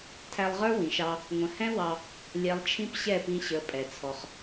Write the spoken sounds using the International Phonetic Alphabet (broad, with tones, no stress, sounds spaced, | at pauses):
tʰ æ˧ lˠ ʁ ə˞˦ w ĩ˨ ʃ ɑ˧ | ŋʷ ə̃˨ h ɛ̃˦ w ɑ˧ | lʲ ɛ˧ lˠ t͡ʃʰ ĩ˦ p ɕ ɛ˦˨ p ĩ˧ ɕ ə˨˦ pʼ ɛ˨ t͡sʰ ɔ˧ χ